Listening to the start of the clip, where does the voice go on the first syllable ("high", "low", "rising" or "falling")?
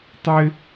high